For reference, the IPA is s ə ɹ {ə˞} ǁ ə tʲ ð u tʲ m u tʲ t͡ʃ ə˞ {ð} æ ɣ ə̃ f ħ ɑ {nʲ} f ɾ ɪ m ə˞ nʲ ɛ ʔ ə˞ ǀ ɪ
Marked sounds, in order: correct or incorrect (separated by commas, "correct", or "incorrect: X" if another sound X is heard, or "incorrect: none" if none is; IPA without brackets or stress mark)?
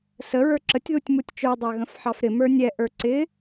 correct, incorrect: dˤ, incorrect: none